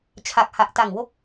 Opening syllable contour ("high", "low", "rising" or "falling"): low